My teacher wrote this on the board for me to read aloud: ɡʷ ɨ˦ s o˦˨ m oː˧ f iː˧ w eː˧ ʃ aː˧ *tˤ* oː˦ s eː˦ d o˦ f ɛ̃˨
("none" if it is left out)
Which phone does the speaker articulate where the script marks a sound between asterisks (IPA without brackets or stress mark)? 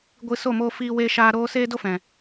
ɾ